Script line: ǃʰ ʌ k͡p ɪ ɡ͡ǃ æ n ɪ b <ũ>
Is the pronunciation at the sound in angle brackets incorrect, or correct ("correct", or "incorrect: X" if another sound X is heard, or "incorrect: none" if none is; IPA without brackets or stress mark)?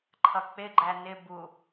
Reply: incorrect: u